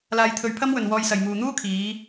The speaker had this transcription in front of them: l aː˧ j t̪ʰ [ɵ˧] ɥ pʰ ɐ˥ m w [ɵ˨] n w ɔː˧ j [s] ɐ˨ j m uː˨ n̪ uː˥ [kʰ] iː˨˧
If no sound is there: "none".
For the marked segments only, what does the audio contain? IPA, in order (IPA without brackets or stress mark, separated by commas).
ɵ˧, ɵ˨, s, kʰ